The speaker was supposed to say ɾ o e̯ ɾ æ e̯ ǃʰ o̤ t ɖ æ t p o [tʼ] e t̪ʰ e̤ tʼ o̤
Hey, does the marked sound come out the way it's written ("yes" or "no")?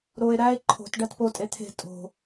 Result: yes